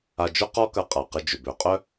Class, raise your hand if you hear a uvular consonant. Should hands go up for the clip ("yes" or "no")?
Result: yes